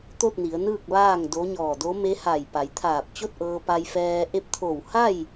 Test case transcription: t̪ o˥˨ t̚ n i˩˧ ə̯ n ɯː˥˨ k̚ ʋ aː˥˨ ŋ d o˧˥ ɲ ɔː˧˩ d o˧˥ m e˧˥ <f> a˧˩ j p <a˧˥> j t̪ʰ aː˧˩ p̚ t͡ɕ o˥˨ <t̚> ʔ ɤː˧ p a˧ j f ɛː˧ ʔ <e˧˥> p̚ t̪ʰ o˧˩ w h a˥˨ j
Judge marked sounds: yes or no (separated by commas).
no, no, yes, yes